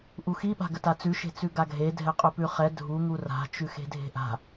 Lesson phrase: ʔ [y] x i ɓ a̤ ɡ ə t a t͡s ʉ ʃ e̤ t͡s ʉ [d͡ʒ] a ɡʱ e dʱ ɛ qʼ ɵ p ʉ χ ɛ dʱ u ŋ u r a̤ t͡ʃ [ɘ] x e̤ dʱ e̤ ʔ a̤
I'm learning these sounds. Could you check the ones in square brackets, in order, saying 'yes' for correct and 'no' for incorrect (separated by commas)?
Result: no, no, no